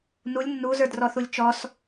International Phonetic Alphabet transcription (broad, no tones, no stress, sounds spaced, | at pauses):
n u lʲ nː u z ə˞ d r ɔ θ u lʲ t͡ʃ ɔ s